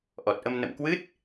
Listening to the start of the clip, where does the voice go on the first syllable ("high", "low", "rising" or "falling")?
low